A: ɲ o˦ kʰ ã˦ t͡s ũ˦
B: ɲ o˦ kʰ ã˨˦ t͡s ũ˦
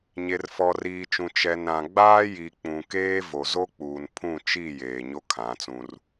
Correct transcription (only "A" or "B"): B